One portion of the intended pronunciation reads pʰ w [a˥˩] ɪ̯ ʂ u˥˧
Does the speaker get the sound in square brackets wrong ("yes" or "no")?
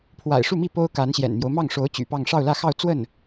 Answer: yes